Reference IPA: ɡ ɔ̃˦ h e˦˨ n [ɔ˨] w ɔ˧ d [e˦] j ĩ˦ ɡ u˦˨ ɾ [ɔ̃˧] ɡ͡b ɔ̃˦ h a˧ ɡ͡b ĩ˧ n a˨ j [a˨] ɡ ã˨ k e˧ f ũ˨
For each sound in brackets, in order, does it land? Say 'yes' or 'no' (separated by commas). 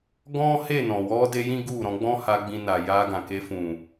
no, no, yes, no